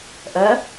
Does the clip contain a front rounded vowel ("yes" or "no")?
yes